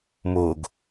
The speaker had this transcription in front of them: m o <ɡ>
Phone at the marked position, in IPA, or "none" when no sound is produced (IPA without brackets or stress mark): ɡ